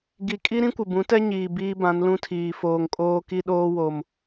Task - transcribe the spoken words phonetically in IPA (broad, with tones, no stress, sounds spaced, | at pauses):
ɡ i˨ kʼ i˦ ɾ ĩ˦ kʷ ɪ˨ b ũ˨˦ t ɛ˦ ɲ iː˨ b iː˦ b ã˨˦ n l ũ˦ tʰ iː˨ f oː˨ ŋ kʼ oː˦ k i˦ ɗ oː˦ w o˨ m